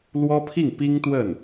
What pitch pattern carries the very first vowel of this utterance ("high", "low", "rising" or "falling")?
high